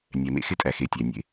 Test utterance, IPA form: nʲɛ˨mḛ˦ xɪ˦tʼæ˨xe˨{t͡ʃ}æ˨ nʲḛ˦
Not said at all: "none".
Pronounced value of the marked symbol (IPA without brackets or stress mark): tʲ